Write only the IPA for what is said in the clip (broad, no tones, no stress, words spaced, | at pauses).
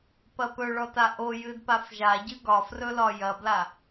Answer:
pɐpɵɭɔt aʔojɨd pafʒaɟɨ ɡɒfrɵ lɒjɐbla